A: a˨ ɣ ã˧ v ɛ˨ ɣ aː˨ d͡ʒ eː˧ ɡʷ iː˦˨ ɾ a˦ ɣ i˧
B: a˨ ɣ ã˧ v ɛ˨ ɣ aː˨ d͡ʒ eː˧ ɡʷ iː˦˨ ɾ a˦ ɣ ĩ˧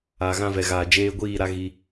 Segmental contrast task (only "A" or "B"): A